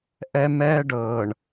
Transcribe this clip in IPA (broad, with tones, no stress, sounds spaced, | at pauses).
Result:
ʔ ɛ˦ m ɛː˦ ɖ ɤ˨ ɳ